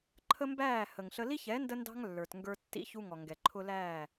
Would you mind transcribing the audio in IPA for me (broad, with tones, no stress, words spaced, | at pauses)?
ǃʰə˦mbæː˦˨ hə˨ŋɬə˦ li˦çɛ˨˦ ndə˦ndɑ̤˦ŋ lːə˞˨tŋɡə˞˦tːḭ˦ çu˦ŋɔ˨ ŋɡɛ˨ǃʰʊ˦læː˦˨